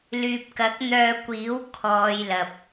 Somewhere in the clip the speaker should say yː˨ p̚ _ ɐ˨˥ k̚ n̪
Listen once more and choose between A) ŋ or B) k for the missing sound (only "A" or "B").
B